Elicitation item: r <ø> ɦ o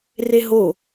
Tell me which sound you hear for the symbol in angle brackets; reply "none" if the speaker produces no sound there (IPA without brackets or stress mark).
e